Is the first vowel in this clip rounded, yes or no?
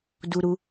yes